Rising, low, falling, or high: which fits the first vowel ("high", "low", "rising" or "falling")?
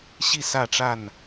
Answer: falling